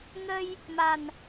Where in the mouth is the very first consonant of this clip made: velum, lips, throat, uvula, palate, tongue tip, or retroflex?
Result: velum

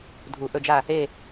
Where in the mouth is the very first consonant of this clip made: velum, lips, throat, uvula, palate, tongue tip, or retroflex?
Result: tongue tip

